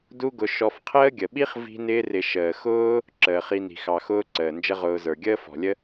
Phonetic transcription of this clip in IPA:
d u˦ ɡ ʊ˧ ʃ ɔ˧ f qʰ əː˦ ɡʲ ə˨ ɓ i˦ χ v i̤˦ n ɪː˦ r ɪ˧ ʃ əː˨ x ʊː˦ | ǁ əː˨ χ i˧ n i̤˨ x ɑ˨ x ʊː˦ ǀ əː˨ n d͡ʒ ə˦ ʁ ʊː˧ z ə˞˨ ɡʲ əː˦ f ɔ̤˨ lʲ ə˦

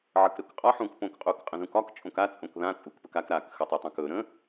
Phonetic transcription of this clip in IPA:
ʕ ə k ɾ ɵ k qʼ ɒ ħ ũ k p õ k qʼ u k qʼ ə̃ z ũ k ɒ k t͡ʃʼ õ k a t͡sʼ õ k ð ã t͡sʼ u k p ə k a k ɾ a k x ə tˤ ɵ tˤ ã k ɵ ɾ ə̃

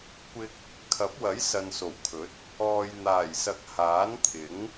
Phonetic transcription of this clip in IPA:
kʷ ɪ˧ k̚ | kʰ ɐ˨˥ p̚ w ɐ˨˥ j s ɐ˨ n s o˨˩ w kʰ ɵ˨˥ t̚ | ɔː˨ j n̪ aː˨˩ j s ɐ˨˥ k̚ h aː˨˥ n t̪ʰ ɪ˨˥ ŋ

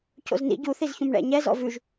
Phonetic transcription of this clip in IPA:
c o̰ z n ḭ ɟ u θ i z ç ũ m ɳ ɛ̰ ɲ ɛ z ɔ̰ v ʉ ʒ

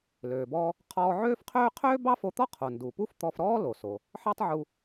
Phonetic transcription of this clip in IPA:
l øː˩ b ɔː˧ | qʰ ɔː˧ ʕ øː˥ f qʰ øː˥ qʰ øː˥ b ɑ˥ f o˧ t̪ ɔ˥ qʰ o˩ n d u˩ p u˥ f t̪ ɔ˧ f ɾ ɔː˥ l o˩ s o˩ | ħ ɑ˥ tˤ ʕ u˧

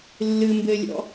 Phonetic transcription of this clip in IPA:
lː ɨ m b ɘ lʲ ɔ̰

